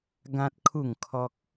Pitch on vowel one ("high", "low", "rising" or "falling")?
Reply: high